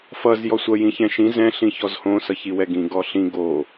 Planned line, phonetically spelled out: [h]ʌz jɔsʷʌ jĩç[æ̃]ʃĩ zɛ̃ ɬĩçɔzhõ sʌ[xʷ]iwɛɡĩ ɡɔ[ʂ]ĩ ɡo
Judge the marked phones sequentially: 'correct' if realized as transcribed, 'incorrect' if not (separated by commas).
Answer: incorrect, incorrect, incorrect, incorrect